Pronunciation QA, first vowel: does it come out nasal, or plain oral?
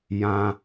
nasal